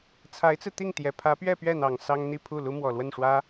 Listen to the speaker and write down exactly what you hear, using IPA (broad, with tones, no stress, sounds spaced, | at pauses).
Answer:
t͡sʰ a˧˥ ɪ̯ t͡s ɹ̩˧ t̪ i˥˩ ŋ t̪ j ɛ˨˩ pʰ ä˧˥ p ɥ ɛ˥˧ p ɥ ɛ˥˩ n̪ ɑ˨˩ ŋ s ɑ˥ ŋ n̪ i˥˧ pʰ u˥˩ l u˥ m w ɔ˨˩ l w ə˥˩ n ʂ w ä˥